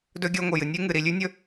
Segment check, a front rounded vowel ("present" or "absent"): absent